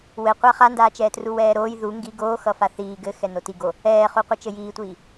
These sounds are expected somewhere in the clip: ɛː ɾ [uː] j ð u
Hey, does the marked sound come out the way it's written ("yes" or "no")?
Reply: no